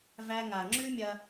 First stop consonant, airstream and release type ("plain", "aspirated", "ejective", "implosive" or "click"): click